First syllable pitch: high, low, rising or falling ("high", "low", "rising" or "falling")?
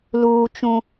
high